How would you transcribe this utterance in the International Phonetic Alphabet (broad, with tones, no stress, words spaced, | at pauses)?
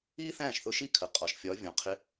iː˥θæ̃ː˥˩ʃθʊ˧ʃi˥˩ kʰə˩ qʼɒ˩ʃ fʲɒ˩˥vʲɔ̃˩ qʰɪ˧